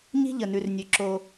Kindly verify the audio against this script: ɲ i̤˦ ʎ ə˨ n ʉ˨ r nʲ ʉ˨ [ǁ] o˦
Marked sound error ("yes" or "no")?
no